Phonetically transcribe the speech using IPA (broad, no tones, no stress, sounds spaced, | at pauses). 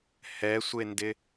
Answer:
h ɛ sʷ e n d ɪ